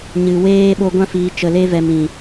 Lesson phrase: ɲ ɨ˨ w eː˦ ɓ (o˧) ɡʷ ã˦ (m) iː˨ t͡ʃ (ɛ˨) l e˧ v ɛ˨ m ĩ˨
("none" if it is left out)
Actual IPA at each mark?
o˧, f, ə˨

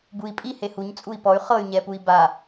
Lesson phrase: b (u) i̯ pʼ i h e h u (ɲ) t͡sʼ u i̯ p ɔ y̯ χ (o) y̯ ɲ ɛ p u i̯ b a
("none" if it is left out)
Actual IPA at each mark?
u, ɲ, ɤ

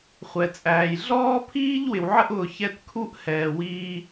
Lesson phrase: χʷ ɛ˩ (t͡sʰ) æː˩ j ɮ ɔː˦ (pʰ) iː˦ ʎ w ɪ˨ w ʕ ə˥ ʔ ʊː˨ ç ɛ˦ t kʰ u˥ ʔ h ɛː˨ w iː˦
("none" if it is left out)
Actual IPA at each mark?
t͡sʼ, pʰ

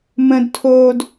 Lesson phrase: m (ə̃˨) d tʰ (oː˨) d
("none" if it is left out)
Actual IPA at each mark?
ə̃˨, oː˨

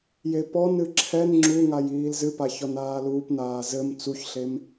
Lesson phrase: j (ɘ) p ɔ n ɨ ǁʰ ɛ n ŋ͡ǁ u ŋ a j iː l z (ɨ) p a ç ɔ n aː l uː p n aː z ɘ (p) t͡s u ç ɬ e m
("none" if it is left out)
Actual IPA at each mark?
e, ɨ, m

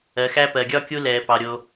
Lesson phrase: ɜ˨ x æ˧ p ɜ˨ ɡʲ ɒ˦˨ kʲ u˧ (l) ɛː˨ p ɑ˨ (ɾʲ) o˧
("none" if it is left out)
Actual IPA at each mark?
l, ɾʲ

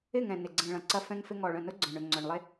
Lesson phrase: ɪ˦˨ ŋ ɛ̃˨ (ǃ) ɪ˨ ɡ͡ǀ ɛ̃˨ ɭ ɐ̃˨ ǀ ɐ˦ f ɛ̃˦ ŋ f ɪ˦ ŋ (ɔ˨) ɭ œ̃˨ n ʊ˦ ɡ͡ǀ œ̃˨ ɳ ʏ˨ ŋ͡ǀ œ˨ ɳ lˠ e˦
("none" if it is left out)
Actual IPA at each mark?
n, ɔ˨

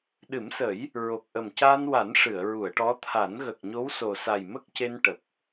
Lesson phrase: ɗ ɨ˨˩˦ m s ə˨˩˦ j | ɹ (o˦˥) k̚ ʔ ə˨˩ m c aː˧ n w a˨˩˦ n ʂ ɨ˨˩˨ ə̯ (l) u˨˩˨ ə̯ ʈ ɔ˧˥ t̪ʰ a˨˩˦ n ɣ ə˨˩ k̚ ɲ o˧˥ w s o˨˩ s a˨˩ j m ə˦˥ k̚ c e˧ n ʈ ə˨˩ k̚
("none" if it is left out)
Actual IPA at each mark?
o˨˩, ɹ

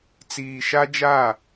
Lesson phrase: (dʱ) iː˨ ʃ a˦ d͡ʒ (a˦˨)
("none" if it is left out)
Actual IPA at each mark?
t͡s, a˦˨

